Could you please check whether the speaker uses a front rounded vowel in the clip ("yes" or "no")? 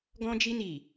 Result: no